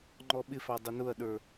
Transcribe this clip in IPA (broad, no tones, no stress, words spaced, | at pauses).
ŋ͡ǃɔɓɪfɑ dˤʊnʊɐ̯ɗə˞